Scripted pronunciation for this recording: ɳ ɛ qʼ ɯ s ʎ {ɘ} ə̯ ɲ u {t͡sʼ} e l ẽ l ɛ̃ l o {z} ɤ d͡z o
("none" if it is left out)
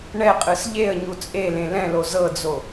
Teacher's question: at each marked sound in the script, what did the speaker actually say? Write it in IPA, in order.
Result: e, t͡sʼ, z

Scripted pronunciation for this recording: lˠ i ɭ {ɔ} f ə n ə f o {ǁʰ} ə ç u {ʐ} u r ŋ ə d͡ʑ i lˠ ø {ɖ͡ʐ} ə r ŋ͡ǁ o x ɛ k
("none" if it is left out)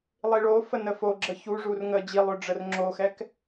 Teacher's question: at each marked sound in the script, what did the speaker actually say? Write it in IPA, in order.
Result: o, ɡ͡ǁ, ʐ, ɖ͡ʐ

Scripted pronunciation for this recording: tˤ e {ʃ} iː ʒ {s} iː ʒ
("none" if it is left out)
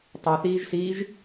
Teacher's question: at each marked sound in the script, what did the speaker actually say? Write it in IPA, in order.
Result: θ, s

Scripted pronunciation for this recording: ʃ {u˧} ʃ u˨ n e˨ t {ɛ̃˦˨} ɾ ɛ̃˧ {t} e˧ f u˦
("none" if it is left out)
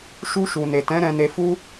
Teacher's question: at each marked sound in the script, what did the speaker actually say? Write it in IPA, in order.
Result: u˧, ɛ̃˨˦, n

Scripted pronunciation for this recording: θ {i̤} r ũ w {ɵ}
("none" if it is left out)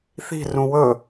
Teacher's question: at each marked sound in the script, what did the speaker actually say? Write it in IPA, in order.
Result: i̤, ɵ

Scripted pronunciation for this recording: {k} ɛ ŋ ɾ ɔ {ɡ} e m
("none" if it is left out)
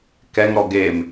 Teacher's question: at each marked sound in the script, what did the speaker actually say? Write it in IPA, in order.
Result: k, ɡ

